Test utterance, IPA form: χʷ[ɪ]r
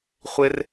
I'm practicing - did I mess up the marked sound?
no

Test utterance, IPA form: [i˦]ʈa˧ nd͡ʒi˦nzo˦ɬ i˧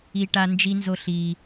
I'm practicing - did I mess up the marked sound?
yes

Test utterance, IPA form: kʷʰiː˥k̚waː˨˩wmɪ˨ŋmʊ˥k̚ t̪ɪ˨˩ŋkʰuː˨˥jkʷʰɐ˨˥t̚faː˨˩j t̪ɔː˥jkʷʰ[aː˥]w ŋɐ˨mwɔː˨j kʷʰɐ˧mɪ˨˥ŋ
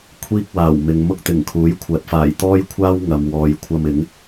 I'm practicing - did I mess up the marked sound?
no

